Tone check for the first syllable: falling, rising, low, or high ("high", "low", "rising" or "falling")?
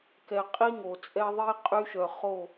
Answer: low